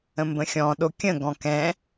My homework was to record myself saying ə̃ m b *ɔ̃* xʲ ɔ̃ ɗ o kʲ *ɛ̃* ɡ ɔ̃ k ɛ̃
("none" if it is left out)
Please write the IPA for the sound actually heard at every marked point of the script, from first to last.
ə̃, ə̃

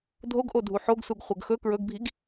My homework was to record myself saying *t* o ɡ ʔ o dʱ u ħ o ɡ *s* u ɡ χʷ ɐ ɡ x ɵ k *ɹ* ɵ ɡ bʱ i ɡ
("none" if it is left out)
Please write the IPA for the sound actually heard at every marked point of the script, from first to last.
dʱ, s, ɹ

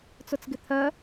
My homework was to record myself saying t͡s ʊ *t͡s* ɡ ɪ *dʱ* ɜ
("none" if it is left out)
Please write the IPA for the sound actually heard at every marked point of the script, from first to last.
t͡s, t̪ʰ

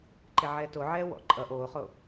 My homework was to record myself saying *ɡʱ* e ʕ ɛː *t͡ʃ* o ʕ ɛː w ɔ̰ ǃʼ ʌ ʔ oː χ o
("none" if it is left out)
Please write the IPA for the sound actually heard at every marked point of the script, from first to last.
ǃ, t

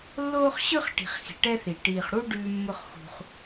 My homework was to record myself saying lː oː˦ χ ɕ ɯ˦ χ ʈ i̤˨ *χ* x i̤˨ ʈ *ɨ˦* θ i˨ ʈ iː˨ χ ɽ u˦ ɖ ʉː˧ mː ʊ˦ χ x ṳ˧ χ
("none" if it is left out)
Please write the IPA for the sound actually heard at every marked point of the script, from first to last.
χ, ɛ˦

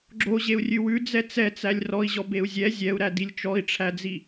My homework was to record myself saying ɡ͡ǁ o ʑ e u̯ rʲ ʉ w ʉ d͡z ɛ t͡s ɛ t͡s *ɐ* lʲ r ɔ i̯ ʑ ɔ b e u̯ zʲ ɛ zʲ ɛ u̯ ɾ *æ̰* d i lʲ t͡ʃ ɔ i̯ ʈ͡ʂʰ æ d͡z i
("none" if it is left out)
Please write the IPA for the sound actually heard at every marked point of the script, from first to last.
æ, æ

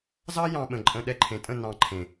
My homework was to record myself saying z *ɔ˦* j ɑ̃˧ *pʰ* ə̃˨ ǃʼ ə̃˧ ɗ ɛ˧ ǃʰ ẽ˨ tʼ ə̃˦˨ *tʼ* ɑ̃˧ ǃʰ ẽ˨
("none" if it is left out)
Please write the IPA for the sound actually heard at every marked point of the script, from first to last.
ɑ˦, ɓ, n

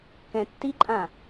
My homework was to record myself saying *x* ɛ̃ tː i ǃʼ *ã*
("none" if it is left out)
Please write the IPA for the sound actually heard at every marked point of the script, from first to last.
k, ã

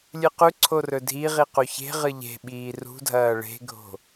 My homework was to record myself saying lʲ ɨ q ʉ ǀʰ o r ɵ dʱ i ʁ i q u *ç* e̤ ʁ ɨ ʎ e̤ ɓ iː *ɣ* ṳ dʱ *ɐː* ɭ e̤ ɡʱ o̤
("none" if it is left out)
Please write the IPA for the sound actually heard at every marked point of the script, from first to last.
ç, r, ɐː

